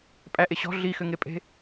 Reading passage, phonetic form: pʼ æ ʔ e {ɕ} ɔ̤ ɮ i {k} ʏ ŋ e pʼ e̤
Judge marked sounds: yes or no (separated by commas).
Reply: yes, no